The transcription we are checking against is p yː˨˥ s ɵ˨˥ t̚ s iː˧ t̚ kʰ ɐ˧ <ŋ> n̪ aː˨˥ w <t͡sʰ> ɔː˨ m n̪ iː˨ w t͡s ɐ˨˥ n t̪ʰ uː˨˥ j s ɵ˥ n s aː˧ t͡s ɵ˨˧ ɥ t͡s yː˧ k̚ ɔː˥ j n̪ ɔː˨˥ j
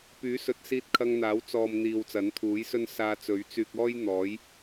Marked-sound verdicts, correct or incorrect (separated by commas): correct, incorrect